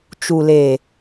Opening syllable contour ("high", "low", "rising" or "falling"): low